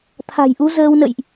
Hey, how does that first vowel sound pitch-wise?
low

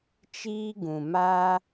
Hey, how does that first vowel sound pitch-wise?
high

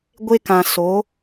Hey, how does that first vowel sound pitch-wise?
high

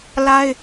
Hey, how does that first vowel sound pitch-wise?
high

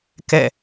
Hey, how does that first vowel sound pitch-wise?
falling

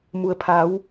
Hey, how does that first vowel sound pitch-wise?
low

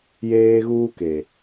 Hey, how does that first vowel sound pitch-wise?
high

